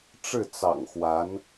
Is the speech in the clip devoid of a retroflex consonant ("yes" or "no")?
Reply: no